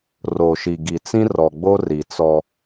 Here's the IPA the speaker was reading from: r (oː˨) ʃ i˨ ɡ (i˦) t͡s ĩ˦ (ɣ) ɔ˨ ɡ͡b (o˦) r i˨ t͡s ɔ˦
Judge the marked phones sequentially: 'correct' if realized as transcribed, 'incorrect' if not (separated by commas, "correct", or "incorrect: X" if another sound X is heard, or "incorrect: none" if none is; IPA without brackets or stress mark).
incorrect: o˨, incorrect: i˨, incorrect: r, correct